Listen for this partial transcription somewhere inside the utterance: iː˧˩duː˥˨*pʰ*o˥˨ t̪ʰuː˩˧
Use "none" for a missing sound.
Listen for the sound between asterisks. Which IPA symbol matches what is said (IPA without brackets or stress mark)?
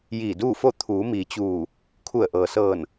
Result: f